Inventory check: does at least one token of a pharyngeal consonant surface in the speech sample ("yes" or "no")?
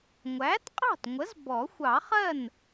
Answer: no